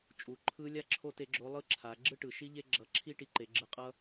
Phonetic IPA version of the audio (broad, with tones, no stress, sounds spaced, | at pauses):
t͡ʃʼ u˩˧ ǃʰ ɯ˧˥ lʲ a˥ ǁʰ o˥ t e˧˥ ɡ͡ǁ o˧˥ lˠ ɯ˥ ǁʰ a˩˧ ɡ͡ǁ ɯ˥ ʈ ɯ˩ ʃ i˥ ʎ e˥ ɡ͡ǁ ʌ˧ ǁʰ i˥ ʈ i˧ ǃ e˩˧ ɡ͡ǁ ɯ˧ qʼ ʌ˥